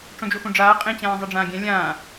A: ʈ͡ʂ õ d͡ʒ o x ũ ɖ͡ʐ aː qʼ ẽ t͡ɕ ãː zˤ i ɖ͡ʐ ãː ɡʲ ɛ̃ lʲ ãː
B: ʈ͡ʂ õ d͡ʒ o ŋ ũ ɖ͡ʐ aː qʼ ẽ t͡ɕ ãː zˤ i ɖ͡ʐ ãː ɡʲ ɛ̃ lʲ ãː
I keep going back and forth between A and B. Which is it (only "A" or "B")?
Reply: A